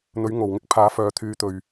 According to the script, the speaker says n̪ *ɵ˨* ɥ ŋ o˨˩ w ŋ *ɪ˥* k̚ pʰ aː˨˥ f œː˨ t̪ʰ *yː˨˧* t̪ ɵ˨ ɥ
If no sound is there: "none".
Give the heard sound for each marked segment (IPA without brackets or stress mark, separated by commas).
ɵ˨˥, ɪ˥, yː˨˧